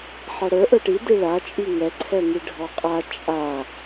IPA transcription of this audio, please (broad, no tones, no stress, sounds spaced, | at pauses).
ħ a ɽ ə˞ ʔ ə˞ ʈ i d i ɭ a t͡ʃʼ i ŋ ɛ ǀʰ ɛ ŋ i ɖʱ ɔ qʼ a t͡ʃʼ a